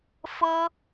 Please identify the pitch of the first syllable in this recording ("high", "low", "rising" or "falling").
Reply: high